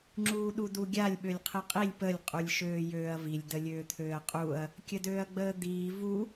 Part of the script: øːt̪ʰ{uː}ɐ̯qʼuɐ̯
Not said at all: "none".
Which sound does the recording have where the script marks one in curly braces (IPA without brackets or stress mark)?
øː